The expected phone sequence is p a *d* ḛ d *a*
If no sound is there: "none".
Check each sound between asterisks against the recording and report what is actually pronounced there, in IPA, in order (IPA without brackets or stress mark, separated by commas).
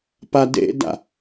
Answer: d, a̰